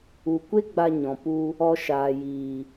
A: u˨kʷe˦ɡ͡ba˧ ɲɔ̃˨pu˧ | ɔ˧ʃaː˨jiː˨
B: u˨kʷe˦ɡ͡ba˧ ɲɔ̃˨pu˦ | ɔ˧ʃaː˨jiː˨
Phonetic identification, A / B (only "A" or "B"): A